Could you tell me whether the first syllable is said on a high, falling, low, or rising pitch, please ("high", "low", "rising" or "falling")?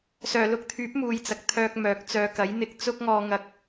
low